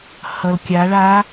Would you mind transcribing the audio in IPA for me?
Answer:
h ʌ˩ l kʲ a˩˧ ɭ a˧˥

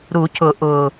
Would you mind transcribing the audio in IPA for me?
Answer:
ɾ u˨˩˦ cʰ ʊ˨˩˦ ʔ ʊː˨˩

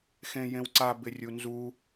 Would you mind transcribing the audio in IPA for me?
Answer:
x ẽ j ẽ w ǀ a b ɪ rʲ u n z u

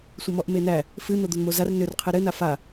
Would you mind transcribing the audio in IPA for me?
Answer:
sʷ ɘ m ɔ ʔ m e n æ | f ɨ n̪ o d̪ o n m o z a r n ʏ r qʰ e ɾ ɘ n a f a

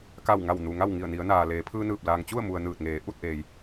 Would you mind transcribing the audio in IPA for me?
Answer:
k a˧˩ w ŋ a˧˩ w n u˩ ŋ a˥˨ w ŋ i˧˩ ə̯ n i˩˧ ə̯ n aː˩ l eː˩˧ pʰ ɯː˧ n ɯː˧˩ p̚ l aː˩ ŋ t͡ɕ u˥˨ ə̯ m u˩ ə̯ n ɯː˧˩ t̚ ŋ eː˩˧ ʔ u˥˨ t̚ ʔ eː˩ j

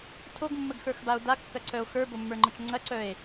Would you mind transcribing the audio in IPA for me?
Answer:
tʰ o ɡ mː ə ɡ x ə˞ x b a o̯ d a kː ɐ ǀ œ o̯ x ə˞ b o mː ə˞ ŋ͡ǃ ə t͡ʃ ŋ͡ǀ ɐ ǀ œ e̯

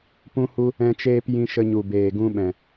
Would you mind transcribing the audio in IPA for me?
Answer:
p ũ˦ h u˦ | ɛ̃˦ t͡ʃ eː˦ p j ĩ˧ ʃ ə˧ ɲ u˨ b eː˨ ɡ ũ˧ ɓ ɛ̃˨

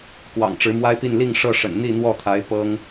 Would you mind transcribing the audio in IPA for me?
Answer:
k w ɑ̰˨˩ ŋ ʈ͡ʂ ɻ̩˧˥ m w a˥ ɪ̯ p i˥˧ n l i˥˧ ŋ ʂ ɤ˥˩ ʂ ə̰˨˩ n n̪ i˥˧ n̪ w ɔ˥˩ t̪ʰ a˧˥ ɪ̯ p ɤ˥ ŋ

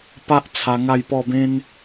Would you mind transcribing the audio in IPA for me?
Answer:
p a˦ ʔ t͡sʰ a˧ ŋ a˥˧ j p ɔ˥˧ b ẽ˦ n

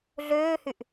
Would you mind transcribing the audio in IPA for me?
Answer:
ɮ øː h y ʔ

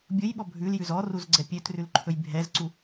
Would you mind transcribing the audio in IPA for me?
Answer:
bʲ ʊ j ɓ ɔ bʱ ʉ l j ʉ z ɔ r u z ɡ͡ǀ ɛ pʲ ø t r ʉ l ǃʰ ɵ j bʱ ɛ z ǀ u

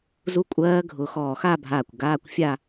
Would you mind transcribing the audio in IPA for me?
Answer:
z u˦˥ kʷʼ ɜː˦˥ ɡʱ ʊ˧ x ɔː˧˩ x a˥˧ bʱ aː˧˩ kʷ ɡ aː˧˥˧ kʷ fʲ a˥˧

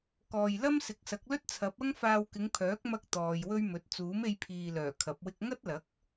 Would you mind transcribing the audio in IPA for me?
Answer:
k ɔː˨ j l ɐ˥ m s ɪ˨˥ k̚ s ɐ˨˥ k̚ l ɵ˥ t̚ t͡sʰ ɐ˨˥ p̚ ɐ˥ ŋ f aː˧ w k ɪ˨˧ ŋ pʰ œː˨˥ k̚ m ɐ˥ k̚ t̪ ɔː˨ j w ɵ˥ ɥ m ɵ˨˥ t̚ t͡s uː˨˥ m e˧ j pʰ iː˨ l œː˨˩ kʰ ɐ˨˥ p̚ w ɪ˥ k̚ ŋ ɐ˥ t̚ l ɐ˨˥ k̚

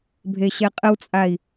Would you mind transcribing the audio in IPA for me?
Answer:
bʱ e ɕ ɛ qʼ ə w t͡sʼ a i̯

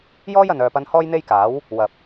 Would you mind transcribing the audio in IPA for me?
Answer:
j ɔː˥ j ɐ˨ n œː˨ p ɐ˧ n h ɔː˥ j n̪ e˥ j k aː˨˥ w | w ɐ˨ p̚

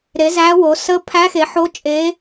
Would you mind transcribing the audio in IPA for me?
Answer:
ɾ e˩˥ z æ˧˥ w o˩˥ s ə˧˥ pʰ æ˧˥ x e˩˥ ħ o˧˥ t͡ʃʼ e˧˥

